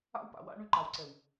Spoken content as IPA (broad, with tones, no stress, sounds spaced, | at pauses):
a̰˦ w p a̰˨ w a̰˦ ɳ y˦ ǃ a˨ w ǀ ɛ˨ w